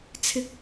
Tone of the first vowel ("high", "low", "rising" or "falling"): high